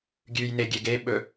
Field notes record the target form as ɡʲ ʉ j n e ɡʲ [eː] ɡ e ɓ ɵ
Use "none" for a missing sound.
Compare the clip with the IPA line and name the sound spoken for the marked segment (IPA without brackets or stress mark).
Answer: e